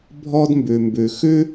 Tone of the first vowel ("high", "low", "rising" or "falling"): high